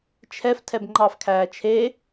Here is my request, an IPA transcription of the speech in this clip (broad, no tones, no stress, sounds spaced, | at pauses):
t͡ʃʰ ɛ f tʰ ɛ b ŋ͡ǃ ɑ f kʰ æː t͡ʃʰ e